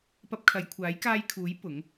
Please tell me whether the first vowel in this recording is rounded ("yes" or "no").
no